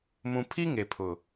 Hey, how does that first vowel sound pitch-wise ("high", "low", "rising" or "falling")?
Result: low